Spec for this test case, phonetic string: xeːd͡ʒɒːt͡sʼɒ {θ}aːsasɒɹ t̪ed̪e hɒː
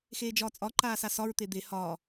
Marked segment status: incorrect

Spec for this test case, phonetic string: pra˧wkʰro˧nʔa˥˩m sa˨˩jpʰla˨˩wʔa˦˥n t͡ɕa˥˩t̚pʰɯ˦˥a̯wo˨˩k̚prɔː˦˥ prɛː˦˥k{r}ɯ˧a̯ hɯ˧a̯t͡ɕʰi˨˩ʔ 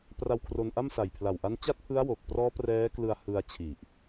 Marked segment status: incorrect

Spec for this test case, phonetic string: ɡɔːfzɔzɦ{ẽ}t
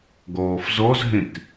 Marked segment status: correct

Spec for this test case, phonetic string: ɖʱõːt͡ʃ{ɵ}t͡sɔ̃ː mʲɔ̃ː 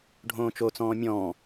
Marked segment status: incorrect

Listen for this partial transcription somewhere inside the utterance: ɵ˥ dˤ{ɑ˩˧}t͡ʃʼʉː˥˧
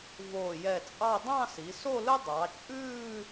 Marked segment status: correct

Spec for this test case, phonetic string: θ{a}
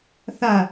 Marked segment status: correct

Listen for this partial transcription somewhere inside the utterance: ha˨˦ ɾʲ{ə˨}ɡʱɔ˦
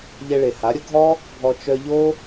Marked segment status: incorrect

